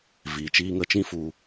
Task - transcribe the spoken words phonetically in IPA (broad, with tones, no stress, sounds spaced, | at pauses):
v iː˨ t͡ʃ iː˧ ŋ ə˧ t͡ʃ ĩ˦ f u˧